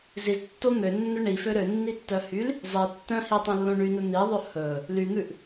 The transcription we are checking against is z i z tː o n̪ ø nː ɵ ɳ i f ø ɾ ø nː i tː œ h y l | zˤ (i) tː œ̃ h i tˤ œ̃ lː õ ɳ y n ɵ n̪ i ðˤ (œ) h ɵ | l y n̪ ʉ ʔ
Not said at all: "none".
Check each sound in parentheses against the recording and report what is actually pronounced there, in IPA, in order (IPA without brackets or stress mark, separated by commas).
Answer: i, ɵ